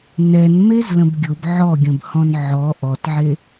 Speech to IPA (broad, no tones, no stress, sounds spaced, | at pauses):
n ɛ n m e z l ə̃ b ɡʲ ʊ b ʕ ɔ ɡʲ ə̃ b h ɔ̃ n ʕ ɔ ʔ ɔ t ʕ e